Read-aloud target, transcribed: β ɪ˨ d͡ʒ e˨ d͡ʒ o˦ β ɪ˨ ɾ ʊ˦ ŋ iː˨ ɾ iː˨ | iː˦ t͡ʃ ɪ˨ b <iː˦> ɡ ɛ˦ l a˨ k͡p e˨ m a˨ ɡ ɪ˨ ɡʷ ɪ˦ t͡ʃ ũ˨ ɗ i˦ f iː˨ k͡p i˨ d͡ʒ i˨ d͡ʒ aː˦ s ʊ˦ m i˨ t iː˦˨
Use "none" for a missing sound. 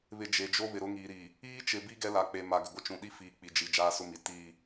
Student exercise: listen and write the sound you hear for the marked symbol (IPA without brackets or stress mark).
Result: i˦